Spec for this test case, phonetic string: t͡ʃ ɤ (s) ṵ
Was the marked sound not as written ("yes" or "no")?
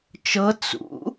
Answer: yes